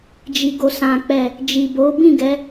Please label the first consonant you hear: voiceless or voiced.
voiced